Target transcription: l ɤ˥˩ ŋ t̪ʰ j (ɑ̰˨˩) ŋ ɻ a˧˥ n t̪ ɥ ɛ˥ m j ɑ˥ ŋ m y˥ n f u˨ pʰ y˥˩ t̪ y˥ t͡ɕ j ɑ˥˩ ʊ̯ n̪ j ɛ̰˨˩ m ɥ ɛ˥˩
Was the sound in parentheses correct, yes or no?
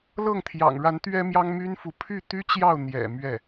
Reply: yes